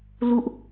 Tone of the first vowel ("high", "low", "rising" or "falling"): falling